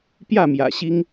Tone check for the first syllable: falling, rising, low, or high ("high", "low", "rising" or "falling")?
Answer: falling